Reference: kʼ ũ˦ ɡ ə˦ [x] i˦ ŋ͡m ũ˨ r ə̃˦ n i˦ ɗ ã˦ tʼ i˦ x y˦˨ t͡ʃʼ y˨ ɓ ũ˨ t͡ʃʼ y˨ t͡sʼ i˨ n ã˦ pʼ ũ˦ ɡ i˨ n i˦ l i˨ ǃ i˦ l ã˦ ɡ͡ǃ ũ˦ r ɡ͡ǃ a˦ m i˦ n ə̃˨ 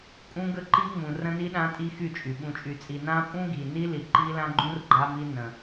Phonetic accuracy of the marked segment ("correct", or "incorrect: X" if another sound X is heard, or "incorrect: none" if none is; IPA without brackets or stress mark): incorrect: ǃ